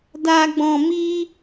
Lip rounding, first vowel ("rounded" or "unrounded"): unrounded